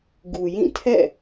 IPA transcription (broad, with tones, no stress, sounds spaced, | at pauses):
ɡ u˨ j ĩ˦˨ tʰ ɛ̰˦˨